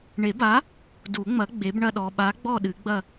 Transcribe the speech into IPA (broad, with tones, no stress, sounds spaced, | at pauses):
ɳ e˨˩˦ b a˨˥ | d u˨˩˦ ŋ͡m ɐ˨˥ ɡ͡b e˨˥ b ɳ ɐ˥˧ ɗ ɔ˨ ɓ a˨˥ ɡ͡b ɔ˥˧ ɗ ɨ˨˩˦ ɡ͡b ɐ˥˧